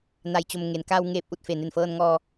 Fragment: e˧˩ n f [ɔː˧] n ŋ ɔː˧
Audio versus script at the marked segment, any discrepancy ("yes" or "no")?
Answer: yes